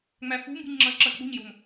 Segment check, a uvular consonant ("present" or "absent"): absent